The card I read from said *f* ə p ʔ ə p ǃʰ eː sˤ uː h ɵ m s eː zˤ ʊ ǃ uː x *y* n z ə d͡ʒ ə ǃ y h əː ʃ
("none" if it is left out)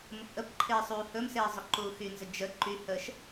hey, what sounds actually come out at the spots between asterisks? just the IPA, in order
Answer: m, y

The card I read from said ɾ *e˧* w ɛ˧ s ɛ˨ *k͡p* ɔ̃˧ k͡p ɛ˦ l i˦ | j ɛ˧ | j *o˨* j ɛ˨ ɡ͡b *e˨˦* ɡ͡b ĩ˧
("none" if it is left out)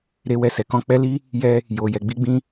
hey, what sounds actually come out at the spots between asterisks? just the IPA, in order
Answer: e˧, k, o˨, i˨˦

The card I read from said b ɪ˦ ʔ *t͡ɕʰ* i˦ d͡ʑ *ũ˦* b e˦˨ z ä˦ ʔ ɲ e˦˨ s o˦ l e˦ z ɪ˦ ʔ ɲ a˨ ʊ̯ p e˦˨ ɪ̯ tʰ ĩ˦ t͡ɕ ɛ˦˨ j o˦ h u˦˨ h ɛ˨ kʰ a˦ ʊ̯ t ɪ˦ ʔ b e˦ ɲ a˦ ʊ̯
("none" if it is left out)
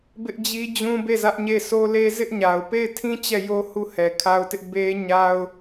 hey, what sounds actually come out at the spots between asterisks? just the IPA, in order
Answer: d͡ʑ, ũ˦

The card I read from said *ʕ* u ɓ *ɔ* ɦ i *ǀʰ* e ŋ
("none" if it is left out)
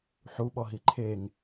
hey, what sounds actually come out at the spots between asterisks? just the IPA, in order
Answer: ħ, ɔ, ǃʰ

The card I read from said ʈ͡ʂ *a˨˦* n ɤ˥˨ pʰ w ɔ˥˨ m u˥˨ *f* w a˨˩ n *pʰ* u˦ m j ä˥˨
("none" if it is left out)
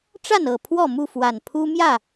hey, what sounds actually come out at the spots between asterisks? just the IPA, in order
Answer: a˥˨, f, pʰ

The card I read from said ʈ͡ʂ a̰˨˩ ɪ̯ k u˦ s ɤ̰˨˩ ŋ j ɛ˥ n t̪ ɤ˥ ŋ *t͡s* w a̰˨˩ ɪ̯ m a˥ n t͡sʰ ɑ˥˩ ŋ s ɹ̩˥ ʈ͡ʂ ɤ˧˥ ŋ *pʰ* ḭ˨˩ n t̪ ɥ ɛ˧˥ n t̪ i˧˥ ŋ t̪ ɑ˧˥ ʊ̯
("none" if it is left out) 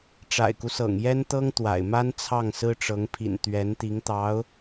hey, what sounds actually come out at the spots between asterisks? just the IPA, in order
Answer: t̪, pʰ

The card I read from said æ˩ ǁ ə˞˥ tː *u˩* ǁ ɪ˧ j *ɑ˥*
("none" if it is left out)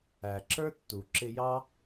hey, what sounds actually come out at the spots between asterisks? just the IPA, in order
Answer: u˩, ɑ˥

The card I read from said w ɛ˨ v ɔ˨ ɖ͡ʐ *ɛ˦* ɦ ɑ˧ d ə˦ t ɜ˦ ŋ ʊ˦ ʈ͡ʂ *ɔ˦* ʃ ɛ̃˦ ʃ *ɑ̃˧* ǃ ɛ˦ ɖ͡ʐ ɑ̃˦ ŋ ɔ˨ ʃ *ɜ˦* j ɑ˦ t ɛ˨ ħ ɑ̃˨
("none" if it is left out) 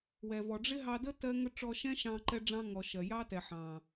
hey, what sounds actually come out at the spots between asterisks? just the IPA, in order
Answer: ɪ˦, ɔ˧, ɑ̃˧, ɜ˨

